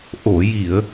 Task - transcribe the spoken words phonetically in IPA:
ʔ o˨˩˨ j i˨˩˨ ə̯

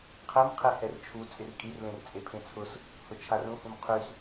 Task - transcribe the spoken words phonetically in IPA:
qʰ ɛ m qʰ e h ɛ r t͡ʃʰ u t͡sʼ ɪ r kʼ i r l ẽ r t͡sʼ e pʰ ẽ t͡sʰ ʊ s | h ʊ t͡ʃʰ a r ũ h ũ m qʰ y s

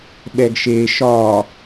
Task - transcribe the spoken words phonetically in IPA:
ɓ ɛ ɡ ʃ e ʃ ɒ

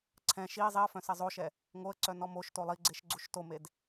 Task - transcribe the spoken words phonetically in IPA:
ǀʰ ɛ̃ ʃ i zˤ i ə̯ f œ̃ s ɛ zˤ o ʃ ɛ | ŋ o ə̯ ǀ œ n ɔ m o ʃ t o lˠ i ɡ͡ǀ e ʃ ɡ͡ǀ u ʃ t o m e d

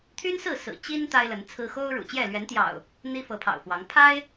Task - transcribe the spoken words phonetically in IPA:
t̪ʰ y˦ n s ɹ̩˥˨ s ɹ̩˨˩ t͡ɕ i˦ n t̪ a˦ ɪ̯ l ə˨˦ n t͡sʰ ɹ̩˦ x o˦ ʊ̯ ɻ ṵ˨˩ t͡ɕ j ɛ˥˨ l ɥ ɛ˨˦ n t̪ j ɑ̰˨˩ ʊ̯ | n̪ i˦ f ɤ˨˦ pʰ ɑ̰˨˩ ʊ̯ f w ɑ˨˦ ŋ pʰ a˦ ɪ̯

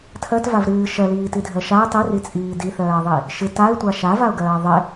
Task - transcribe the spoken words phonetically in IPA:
tʰ ɜ t v a v ɾ ɨː ʃ ɜ l iː t i dʱ ɜ ʃ a ɪ̯ tˤ i r i t͡sʼ iː d i θ ɜː ðˤ i | ʃ ɨ t a ɪ̯ tʷ a ʃ a v a ʊ̯ ɡ ɜː ðˤ ɪ

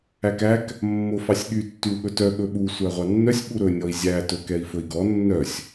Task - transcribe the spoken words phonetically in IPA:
æ k æ k | mː o f ɑ sʲ ɠ y tː y w ɠ ɵ t œ ɠ ɵ ɓ u sʷ æ ʁʷ ɑ nː œ sʲ ɓ u ɾ ɵ nʲ ɔ i̯ zʲ æ t ɵ k ɛ i̯ f ɵ i̯ ɡ ɔ nː œ sʲ

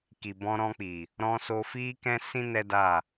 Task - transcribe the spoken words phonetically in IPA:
k i˨ b ɔ̃˧ ɾ ɔ̃˧ k͡p i˨ | ɾ ɔ̃˧ s o˧ f i˦ k ɛ̃˦ s ĩ˦ n ɛ˦ d a˦˨

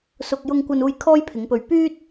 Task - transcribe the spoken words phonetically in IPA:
s ʊ˧ k̚ j ʊ˧ ŋ kʷ ɐ˧ n uː˧ j kʰ ɔː˥ j pʰ ɪ˨˧ ŋ p ɵ˧ ɥ p yː˥ t̚

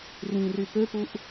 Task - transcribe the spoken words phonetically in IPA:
r ĩ r y p ø p u ʔ

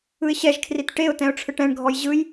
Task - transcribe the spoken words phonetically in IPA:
ɯ ɪ̯ ɕ ɛ ʒ kʰ r i t ʈ e ʊ̯ t ɛ̃ ʊ̯ ʈ͡ʂʰ ɯ ʈ ɛ̃ ɳ ɡʱ ɔ j ʑ ɯ j

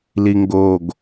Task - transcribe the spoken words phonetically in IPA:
l i ŋ ɡ o ɡ

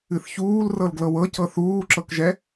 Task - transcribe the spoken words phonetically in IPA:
ɨ θ ç uː l r ɤ l ɡ l ɤ w ɤ c ɤ θ uː ǁ ɤ k ʒ ɛ

